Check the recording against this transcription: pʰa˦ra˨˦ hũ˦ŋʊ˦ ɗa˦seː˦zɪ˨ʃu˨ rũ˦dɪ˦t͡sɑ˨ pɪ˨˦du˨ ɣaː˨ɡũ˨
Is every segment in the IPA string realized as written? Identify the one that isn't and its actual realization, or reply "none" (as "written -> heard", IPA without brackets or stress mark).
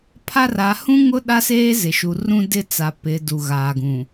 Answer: ɑ˨ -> a˨